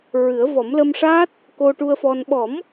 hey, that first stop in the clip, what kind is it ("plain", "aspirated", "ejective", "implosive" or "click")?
plain